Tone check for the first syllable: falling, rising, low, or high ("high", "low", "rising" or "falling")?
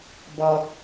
low